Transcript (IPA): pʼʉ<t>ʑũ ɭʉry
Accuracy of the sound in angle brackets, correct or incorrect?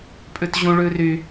correct